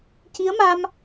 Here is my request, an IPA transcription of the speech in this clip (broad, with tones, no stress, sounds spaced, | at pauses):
c i˧˥ ə̯ m a˧ m